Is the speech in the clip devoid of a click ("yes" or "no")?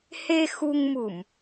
yes